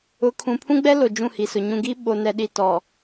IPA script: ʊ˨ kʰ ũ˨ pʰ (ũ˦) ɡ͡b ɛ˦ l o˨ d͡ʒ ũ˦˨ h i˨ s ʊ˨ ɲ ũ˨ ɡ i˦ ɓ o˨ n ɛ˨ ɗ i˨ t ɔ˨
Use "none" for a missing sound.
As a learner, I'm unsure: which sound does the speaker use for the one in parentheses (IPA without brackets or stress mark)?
ũ˦